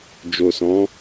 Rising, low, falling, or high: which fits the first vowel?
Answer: low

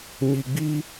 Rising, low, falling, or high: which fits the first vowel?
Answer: low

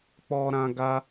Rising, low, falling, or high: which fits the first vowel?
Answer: high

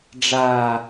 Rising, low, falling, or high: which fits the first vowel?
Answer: high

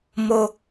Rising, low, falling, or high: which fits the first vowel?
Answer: high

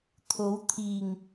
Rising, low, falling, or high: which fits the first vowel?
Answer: rising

